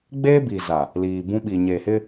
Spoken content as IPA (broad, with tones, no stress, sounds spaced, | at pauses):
ɡ͡b eː˦ b i˨ z a˨ | l iː˨ b ũ˦ ɓ i˨ ɲ e˨ h ɪ˦